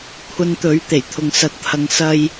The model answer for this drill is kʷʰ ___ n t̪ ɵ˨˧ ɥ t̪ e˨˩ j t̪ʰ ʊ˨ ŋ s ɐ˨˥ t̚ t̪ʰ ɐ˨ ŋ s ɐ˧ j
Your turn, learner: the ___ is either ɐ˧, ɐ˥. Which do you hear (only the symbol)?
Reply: ɐ˧